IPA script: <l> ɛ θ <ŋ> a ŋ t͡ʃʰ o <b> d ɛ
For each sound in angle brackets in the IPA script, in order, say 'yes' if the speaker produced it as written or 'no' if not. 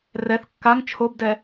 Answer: no, no, yes

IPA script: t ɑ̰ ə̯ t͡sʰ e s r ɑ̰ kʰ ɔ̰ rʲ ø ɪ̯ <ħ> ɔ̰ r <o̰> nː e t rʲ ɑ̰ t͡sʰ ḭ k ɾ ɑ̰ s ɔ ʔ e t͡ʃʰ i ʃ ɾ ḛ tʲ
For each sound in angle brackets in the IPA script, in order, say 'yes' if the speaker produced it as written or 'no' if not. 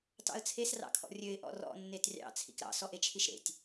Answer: no, no

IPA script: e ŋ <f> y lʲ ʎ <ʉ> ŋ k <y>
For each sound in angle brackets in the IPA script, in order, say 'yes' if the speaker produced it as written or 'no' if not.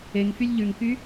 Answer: yes, yes, yes

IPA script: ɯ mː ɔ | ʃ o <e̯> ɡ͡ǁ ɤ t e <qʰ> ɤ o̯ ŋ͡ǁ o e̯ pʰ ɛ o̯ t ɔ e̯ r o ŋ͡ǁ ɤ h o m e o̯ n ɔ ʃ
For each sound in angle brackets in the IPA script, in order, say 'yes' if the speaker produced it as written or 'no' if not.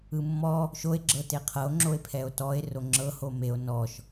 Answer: yes, yes

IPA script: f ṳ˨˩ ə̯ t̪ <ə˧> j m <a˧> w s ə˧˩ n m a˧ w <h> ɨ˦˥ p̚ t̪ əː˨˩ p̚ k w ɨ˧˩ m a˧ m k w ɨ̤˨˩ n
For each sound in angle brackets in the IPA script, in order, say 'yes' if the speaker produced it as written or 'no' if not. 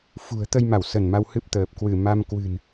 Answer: yes, no, yes

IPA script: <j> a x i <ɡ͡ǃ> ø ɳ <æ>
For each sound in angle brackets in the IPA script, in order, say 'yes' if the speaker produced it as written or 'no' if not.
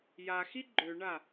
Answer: yes, yes, no

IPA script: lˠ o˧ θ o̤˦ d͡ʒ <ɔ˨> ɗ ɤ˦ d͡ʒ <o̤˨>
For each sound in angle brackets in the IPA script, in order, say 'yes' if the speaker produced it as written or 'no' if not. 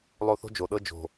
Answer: no, yes

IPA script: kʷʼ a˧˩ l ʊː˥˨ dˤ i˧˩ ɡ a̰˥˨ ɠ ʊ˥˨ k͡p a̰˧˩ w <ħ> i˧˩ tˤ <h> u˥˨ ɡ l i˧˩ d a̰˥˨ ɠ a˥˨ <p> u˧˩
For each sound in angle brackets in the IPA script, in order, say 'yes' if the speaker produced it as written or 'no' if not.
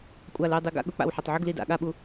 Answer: yes, no, no

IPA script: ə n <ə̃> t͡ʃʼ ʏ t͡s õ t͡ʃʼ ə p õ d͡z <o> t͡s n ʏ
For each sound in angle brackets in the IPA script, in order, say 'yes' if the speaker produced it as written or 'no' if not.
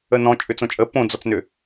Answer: no, no

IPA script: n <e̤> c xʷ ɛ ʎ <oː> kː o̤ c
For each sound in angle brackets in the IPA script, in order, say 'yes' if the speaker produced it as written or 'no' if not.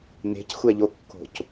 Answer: yes, no

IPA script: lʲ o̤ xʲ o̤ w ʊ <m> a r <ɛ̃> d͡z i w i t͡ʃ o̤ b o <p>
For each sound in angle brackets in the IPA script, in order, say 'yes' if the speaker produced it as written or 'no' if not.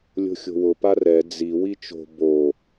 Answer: no, no, no

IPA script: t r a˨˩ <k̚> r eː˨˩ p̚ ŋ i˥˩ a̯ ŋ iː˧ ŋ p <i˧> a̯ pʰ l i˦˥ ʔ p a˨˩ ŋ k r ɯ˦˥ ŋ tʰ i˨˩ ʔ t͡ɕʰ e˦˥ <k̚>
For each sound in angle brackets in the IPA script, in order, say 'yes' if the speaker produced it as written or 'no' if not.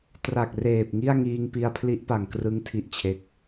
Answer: yes, yes, yes

